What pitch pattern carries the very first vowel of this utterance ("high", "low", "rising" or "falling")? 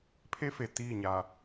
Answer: high